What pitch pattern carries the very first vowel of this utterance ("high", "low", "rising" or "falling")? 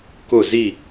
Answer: falling